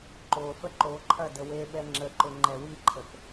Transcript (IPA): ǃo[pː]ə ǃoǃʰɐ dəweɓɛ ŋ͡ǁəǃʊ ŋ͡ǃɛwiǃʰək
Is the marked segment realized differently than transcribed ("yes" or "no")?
yes